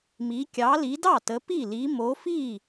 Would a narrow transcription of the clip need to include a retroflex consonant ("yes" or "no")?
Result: no